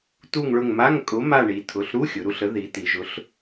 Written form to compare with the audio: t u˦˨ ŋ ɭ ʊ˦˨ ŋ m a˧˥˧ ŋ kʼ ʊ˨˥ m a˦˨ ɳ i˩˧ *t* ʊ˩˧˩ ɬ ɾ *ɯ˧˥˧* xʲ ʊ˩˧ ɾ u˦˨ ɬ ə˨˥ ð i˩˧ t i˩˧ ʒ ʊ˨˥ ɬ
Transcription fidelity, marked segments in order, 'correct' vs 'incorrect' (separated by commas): incorrect, incorrect